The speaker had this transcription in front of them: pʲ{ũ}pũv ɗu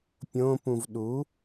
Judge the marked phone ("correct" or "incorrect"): incorrect